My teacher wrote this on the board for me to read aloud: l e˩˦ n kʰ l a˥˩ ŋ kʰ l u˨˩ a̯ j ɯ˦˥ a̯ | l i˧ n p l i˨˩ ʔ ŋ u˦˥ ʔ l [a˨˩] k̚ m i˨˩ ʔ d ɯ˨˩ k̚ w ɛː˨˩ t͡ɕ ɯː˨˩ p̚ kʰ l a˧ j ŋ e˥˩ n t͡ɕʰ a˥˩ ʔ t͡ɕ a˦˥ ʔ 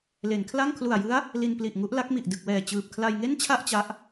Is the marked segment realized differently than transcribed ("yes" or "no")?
yes